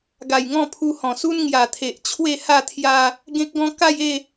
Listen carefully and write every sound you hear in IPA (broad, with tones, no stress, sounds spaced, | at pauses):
ɡ a˨˩ j ŋ ɔ̃˥˧ pʰ u˧ h ɔ̃˨˩ s u˦ n ŋ j a˨˩ t̪ʰ e˨ ʔ t͡ɕʰ w e˥˧ h a˥˧ t̪ʰ j a˧ | ɡ ẽ˦ k̚ ɡ ɔ̃˦ k a˥˧ j e˥˧